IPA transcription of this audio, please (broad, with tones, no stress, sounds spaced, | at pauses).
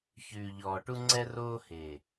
ç ʉː˨ ʎ ɔː˨ ʈ u˦ ŋ͡ǀ ɛ˦ r oː˦ h e˨